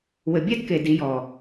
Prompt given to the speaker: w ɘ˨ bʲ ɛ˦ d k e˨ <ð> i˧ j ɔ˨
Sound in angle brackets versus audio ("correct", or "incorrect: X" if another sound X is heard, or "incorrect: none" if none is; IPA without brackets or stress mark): incorrect: d